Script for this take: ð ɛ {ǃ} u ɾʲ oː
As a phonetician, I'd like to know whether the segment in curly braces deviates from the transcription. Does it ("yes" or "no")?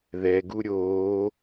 yes